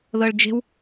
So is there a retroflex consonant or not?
yes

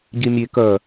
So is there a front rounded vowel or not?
yes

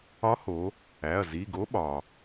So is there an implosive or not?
yes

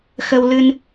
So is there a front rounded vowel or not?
no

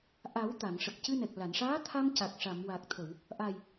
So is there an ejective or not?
no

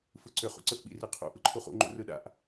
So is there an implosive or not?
yes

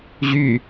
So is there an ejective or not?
no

